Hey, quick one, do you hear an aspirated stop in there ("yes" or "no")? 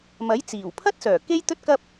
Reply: yes